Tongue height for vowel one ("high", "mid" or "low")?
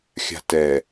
low